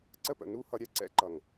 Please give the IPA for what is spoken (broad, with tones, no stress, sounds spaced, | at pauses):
ǀ ə˦ p ə̰˨ n u˦ h ʌ˧ ɾʲ ɛ˦˨ ǀ ɛ̰˦ ǃ ʌ˨ ŋ